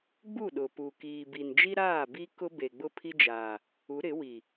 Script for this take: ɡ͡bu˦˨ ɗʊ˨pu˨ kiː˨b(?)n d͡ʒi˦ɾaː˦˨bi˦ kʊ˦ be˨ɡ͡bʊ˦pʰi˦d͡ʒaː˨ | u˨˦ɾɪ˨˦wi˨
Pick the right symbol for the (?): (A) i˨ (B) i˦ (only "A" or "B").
A